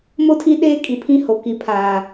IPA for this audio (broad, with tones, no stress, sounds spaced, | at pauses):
m o˦ tʰ i˦ ɗ eː˦ kʼ i˨ pʰ ĩ˦ h o˨ k i˨ pʰ aː˨